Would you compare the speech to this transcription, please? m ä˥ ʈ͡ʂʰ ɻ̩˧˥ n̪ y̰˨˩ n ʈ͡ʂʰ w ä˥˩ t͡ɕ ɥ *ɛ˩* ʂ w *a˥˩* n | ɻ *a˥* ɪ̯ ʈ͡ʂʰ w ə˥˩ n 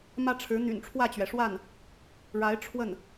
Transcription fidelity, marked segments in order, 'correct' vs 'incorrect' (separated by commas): correct, correct, incorrect